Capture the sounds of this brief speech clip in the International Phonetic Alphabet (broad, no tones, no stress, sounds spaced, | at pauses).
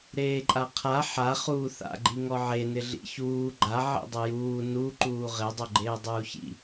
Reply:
ɾ eː ǃʼ a qʰ a ħ a χ uː θ a̰ ɡ͡ǃ i ŋ ɔ ʕ e n ɪ ɮ ḭ ç uː ɡ͡ǃ a ʕ ḭ dˤ ʊ j uː n u ǃ uː ʁ ɪ dˤ o ɡ͡ǃ eː dˤ uː ç ḭ